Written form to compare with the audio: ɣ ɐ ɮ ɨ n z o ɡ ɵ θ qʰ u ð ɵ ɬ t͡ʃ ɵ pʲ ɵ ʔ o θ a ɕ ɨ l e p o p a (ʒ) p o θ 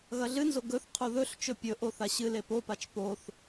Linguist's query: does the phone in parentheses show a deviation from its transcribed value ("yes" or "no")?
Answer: yes